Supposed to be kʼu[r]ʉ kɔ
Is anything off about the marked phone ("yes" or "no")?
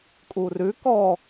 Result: no